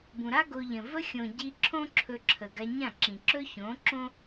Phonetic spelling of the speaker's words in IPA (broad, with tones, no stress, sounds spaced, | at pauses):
b ũ˨ ɾ a˦ ɡ o˧ ʎ ə̃˨ v ə˦ xʲ õ˨ ɟ i˧ ǁʰ õ˦ ǁʰ ɵ˧ ǁʰ ə˨ ɡ a˧ ɲ ã˦˨ ǁ ĩ˨ ǁ ɵ˦ ç õ˨˦ ǁ õ˦